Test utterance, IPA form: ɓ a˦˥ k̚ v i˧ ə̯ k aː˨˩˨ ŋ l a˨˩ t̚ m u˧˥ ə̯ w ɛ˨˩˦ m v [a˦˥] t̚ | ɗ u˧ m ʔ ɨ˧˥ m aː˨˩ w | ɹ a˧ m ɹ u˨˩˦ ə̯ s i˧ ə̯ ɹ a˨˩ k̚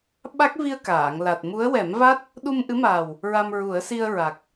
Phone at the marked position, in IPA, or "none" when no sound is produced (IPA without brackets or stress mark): a˦˥